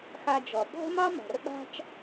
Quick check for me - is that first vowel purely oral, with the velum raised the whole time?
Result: yes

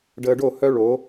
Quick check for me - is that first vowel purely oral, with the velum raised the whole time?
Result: yes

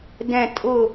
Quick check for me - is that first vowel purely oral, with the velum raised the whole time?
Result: no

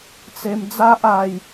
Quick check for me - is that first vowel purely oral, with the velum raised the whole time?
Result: yes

